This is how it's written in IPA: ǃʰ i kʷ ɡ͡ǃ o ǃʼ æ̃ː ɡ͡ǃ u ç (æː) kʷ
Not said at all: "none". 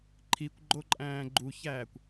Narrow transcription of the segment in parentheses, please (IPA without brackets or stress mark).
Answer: æː